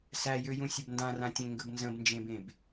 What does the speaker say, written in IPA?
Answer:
sæjøjũ sʲəbndãrãtʲẽ ŋɡəbnzə̃bnd͡ʒẽbẽb

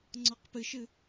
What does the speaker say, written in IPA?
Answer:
ŋ͡ǀɔqpɨʃɨ

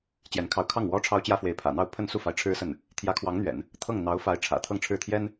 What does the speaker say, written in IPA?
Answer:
t͡ɕjɛ˧˥nkʰɑ˧˥ʊ̯kʰɑ˥˩ŋ wɔ˥ʈ͡ʂʰɑ˥ʊ̯ t͡ɕjä˥fwe˧˥ɪ̯ pʰä̰˨˩n̪ɑ˥˧ʊ̯ pʰə˥˧nsu˥˩fa˧˥ɪ̯ ʈ͡ʂʰɻ̩˥sə˥˩n | t̪ʰjä˧˥kʰwɑ˧˥ŋn̪ɥɛ̰˨˩˦n | t̪ʰɤ˥˩ŋ n̪ɑ˧˥ʊ̯fa˧˥ɪ̯ ʈ͡ʂʰä̰˨˩t̪ʰɤ˥˧ŋʈ͡ʂʰɻ̩˥˩t̪ʰjɛ˥n

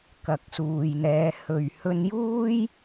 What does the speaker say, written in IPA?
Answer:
kɐ˨k̚suː˨jn̪ɛː˨˧ hɵ˨ɥhɵ˧njuː˥j

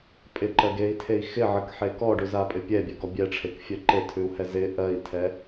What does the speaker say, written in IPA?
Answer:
pʼɪǃɜɡei̯tʰei̯ xɪʕəkħe kɔɖʉzapʼɪ pʲɛbʲœɡɔ bʲɛʈ͡ʂʰekfʲœ ǃetʰʉu̯hɛ zɪ ʔɜi̯tʰɛ

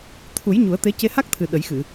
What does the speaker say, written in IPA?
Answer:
t̪ʰu˨˩˦j ɲu˨˩˦ə̯t̪e˧˥ ce˧ha˦˥k̚t̪ʰɨ˨˩ ɗə˨˩˦jxɨ˨˩˨

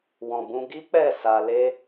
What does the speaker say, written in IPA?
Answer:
wɔ̃˨bũ˧ ɡi˦k͡pɛ˦˨ sa˧ le˦

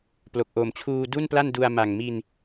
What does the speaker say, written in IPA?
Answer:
plo˨˩k̚ʔo˨˩mt͡ɕʰuː˧ du˥˩npla˥˩ndu˧a̯ ma˨˩ŋmi˧n

